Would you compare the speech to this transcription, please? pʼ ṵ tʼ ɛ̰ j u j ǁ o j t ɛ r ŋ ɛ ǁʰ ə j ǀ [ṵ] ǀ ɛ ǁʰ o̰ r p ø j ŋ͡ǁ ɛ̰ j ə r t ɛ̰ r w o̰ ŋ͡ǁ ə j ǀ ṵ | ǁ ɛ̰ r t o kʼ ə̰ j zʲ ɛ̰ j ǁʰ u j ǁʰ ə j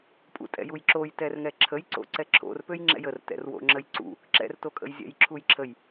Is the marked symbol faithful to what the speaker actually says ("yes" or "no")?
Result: no